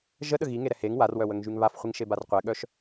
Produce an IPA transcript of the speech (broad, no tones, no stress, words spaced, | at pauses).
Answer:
ʒəɗə ɣiŋeɾɛ heŋ warwœwəŋʒyŋ βafχʷiŋʃebar qʷɛɠœʃ